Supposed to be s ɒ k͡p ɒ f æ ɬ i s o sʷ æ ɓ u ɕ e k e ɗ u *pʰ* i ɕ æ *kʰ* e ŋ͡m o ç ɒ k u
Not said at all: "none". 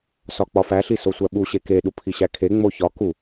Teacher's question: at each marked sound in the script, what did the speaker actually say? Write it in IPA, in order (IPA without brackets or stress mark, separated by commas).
pʰ, kʰ